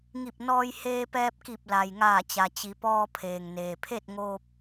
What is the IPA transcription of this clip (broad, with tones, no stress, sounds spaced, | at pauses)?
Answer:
ŋ i˧˩ p̚ n ɔː˧ j h eː˧ p ɛː˧ p̚ k i˧˩ p̚ l a˩ j ŋ aː˧˩ t͡ɕ a˩ t͡ɕ i˩˧ p ɔː˧ pʰ eː˩ ŋ n eː˩ pʰ e˥˨ t̚ ŋ oː˧ p̚